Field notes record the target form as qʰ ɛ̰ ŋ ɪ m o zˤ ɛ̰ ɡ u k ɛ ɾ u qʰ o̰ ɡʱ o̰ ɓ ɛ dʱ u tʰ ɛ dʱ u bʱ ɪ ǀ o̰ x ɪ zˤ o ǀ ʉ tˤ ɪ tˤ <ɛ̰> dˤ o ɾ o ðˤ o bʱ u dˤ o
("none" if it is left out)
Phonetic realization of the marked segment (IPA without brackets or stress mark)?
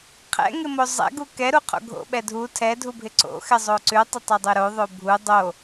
ɛ